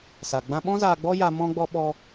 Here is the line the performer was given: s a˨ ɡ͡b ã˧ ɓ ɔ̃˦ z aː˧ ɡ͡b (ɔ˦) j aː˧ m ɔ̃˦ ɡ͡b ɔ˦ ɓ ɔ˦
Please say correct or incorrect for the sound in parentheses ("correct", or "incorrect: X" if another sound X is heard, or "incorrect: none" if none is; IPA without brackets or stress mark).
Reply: correct